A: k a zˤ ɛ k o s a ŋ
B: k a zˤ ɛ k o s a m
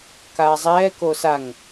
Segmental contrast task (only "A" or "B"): A